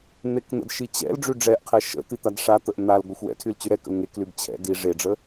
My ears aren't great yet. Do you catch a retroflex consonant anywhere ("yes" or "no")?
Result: yes